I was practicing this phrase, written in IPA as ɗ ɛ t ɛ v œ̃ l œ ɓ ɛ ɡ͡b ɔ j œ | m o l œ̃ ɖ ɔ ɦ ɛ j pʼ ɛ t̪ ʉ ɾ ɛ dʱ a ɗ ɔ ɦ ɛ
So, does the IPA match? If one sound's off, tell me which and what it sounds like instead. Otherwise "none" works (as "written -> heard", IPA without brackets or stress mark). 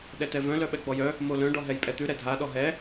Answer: none